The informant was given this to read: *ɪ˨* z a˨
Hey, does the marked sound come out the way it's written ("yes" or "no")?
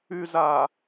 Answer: no